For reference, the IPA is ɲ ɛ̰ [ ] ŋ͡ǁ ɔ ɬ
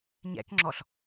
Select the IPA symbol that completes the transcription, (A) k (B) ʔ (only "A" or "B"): A